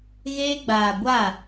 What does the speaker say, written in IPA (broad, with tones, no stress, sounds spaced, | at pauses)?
ɣ eː˧ ɡ͡b aː˨ ɡʷ a˦˨